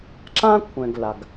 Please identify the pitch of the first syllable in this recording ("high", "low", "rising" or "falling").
high